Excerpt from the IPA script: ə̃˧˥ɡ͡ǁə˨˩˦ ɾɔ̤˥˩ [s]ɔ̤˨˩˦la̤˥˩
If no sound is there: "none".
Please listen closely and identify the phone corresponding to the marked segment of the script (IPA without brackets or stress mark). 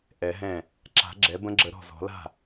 z